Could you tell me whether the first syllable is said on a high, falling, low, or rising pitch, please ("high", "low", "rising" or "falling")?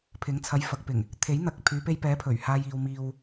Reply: rising